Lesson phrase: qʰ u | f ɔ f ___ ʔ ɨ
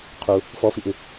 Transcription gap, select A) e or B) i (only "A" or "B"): B